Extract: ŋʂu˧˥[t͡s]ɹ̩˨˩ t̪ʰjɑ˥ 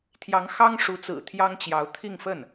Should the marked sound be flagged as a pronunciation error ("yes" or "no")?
no